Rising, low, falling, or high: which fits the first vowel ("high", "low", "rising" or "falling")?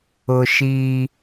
low